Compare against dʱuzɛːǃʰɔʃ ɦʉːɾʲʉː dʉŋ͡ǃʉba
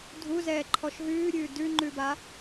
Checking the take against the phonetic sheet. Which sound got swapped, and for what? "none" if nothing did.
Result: none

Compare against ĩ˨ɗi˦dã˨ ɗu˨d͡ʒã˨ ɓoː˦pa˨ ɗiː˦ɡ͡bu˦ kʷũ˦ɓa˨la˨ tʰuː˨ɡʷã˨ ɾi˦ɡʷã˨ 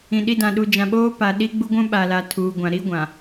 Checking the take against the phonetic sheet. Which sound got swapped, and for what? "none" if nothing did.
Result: kʷ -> ɡʷ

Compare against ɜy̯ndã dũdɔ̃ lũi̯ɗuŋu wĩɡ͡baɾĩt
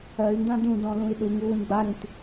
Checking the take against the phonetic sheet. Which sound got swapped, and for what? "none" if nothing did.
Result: none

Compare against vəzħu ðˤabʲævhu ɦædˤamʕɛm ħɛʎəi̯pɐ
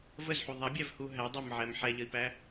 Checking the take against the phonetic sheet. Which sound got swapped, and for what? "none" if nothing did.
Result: ɐ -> æ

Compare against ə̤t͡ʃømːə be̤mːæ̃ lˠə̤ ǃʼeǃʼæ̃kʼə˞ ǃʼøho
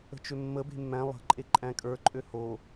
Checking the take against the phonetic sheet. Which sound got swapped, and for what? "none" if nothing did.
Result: none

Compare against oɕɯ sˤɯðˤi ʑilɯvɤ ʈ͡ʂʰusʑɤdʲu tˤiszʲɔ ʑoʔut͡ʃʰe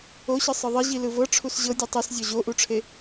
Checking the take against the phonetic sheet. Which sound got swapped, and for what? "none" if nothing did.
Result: t͡ʃʰ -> ʈ͡ʂʰ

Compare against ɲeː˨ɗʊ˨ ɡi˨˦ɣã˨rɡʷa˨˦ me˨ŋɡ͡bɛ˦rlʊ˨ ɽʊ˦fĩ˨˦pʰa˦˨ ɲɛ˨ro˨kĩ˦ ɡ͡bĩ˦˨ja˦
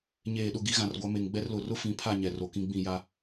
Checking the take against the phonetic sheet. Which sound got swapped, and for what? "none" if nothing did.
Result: ɽ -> r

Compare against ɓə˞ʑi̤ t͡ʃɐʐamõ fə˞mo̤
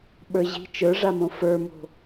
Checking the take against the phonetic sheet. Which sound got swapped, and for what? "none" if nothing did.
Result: ɐ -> ə˞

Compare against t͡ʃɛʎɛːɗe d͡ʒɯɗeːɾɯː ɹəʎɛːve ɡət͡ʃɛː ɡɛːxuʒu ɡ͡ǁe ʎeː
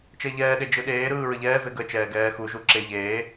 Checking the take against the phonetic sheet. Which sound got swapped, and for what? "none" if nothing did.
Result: ɡ͡ǁ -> ǁ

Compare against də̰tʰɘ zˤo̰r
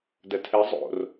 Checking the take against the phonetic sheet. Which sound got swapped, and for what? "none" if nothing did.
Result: ə̰ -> ə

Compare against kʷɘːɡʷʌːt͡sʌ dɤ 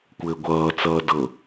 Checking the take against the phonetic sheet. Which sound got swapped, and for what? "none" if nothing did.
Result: ʌ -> ʌː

